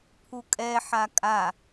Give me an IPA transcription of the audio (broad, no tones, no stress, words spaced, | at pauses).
pʰukʼɛħa kʼa